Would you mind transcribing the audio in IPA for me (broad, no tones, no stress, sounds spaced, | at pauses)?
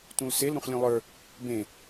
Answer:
t ũ l s e l ɾ ũ χ lʲ ũ lˠ ə˞ | b ẽ